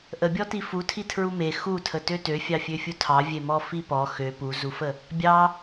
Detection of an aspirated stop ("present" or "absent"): present